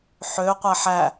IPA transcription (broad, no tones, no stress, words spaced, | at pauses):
ħø qʷæħæ